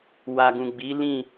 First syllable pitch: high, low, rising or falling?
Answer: low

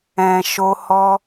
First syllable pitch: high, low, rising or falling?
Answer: low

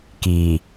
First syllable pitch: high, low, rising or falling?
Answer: low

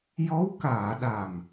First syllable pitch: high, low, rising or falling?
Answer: rising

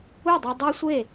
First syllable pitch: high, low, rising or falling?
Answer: falling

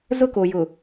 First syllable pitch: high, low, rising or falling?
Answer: high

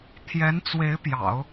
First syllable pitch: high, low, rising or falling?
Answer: rising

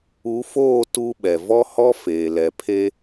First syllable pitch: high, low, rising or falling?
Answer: rising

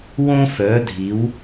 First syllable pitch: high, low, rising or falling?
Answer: high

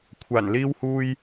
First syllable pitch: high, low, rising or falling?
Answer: low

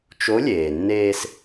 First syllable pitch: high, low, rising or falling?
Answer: rising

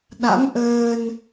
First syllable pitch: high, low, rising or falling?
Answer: rising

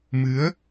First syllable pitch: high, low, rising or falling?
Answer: rising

